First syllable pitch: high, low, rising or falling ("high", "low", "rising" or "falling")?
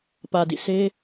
low